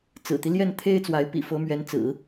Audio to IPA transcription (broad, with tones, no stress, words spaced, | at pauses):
t͡sɹ̩˨˩t̪i˦ ljɛ˥˩nt̪ʰe˥ɪ̯t͡swa˧˥ɪ̯ pḭ˨˩fɤ˧˥mɥɛ˧˥nt͡sɹ̩˨˩˦